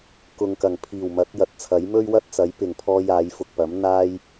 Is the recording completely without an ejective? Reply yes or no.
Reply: yes